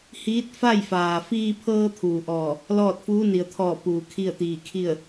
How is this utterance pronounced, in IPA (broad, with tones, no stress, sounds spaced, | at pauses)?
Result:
h iː˧˥ t̚ f a˥˨ j f aː˩ f iː˧ pʰ ɤː˧ t̪ʰ uː˩ ʔ ɔː˧˩ | l ɔː˥˨ t̚ f uː˧˥ n i˩ ə̯ t̪ʰ ɔː˧˩ p uː˩ kʰ i˥˨ ə̯ t̪ iː˧˩ kʰ i˥˨ ə̯